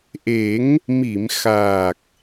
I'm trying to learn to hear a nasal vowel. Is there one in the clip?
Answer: no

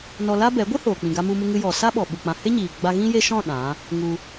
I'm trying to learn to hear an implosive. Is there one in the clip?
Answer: yes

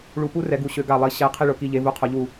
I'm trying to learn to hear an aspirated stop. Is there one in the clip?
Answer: yes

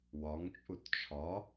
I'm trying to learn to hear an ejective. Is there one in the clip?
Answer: yes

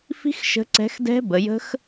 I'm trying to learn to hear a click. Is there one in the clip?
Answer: yes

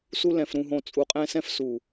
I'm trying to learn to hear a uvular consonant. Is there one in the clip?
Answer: yes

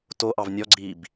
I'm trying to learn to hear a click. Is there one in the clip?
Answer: yes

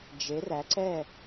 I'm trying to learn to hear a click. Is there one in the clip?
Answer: yes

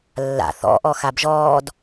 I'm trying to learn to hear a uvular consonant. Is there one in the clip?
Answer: no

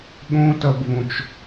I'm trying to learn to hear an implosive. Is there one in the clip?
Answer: yes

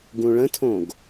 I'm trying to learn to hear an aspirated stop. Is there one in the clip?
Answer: yes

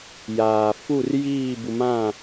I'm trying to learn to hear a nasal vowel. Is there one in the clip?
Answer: yes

